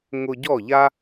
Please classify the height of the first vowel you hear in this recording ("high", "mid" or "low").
high